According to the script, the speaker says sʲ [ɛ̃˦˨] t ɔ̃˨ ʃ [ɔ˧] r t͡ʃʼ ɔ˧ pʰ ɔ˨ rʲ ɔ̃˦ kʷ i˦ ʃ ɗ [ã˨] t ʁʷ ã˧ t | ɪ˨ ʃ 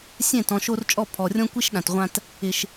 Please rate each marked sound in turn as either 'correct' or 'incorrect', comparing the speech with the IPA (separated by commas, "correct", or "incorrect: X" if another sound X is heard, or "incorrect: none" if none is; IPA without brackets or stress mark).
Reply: correct, incorrect: o˧, correct